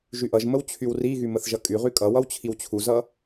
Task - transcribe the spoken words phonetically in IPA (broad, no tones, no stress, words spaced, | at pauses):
ʒyʔʌʒməw t͡ɕʰywriɣy məθʒʌkʼyʁy kʼʌwʌw t͡ɕʰiwt͡ɕʰuzʌ